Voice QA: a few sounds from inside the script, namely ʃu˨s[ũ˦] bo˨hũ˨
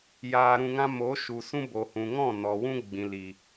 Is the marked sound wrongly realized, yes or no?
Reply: no